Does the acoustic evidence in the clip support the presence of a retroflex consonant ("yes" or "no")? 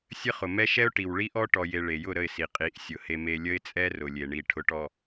yes